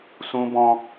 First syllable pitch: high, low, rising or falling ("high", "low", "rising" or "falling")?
high